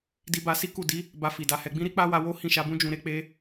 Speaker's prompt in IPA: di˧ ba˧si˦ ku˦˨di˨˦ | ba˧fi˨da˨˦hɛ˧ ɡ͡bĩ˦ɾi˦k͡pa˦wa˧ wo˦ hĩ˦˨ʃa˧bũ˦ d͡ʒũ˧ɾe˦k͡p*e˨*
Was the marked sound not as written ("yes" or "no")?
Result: yes